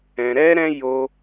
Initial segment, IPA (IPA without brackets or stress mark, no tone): ɛ̃